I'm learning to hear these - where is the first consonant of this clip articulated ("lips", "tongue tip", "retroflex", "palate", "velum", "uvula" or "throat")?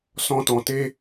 tongue tip